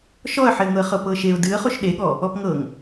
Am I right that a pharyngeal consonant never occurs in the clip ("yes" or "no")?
no